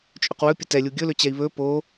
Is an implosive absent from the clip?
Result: yes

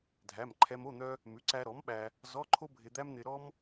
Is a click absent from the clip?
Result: no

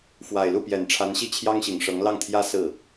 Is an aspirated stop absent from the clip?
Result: no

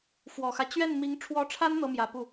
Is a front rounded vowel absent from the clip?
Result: yes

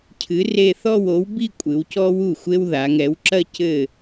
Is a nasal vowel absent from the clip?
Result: yes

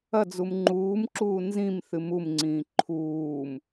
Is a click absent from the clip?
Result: no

